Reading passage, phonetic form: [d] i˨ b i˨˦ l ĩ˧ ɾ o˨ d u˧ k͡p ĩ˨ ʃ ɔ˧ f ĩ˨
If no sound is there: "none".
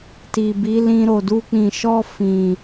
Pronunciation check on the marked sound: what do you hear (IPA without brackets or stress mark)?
t